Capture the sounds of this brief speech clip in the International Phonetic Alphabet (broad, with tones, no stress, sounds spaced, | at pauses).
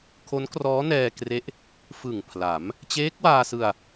kʰ o˦˥ n k r ɔː˦˥ n ɛː˧ k r e˦˥ ʔ | f ɯ˨˩ ŋ pʰ l a˩˦ m | t͡ɕ eː˦˥ k̚ w aː˧ s ɯ˧ a̯